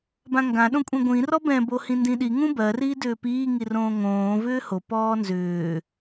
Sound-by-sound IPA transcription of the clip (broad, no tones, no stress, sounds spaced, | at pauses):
b ã ŋ ɡ ã ɗ õ kʷʼ ĩ ɡʷ ĩ r ɔ b ɛ̃ b o h ĩ n d ĩ ɗ i ŋ ũ b ɜ r iː d ʏː p iː ŋ i r õː ŋ õː v ʏː h o p ɔː n z ʏː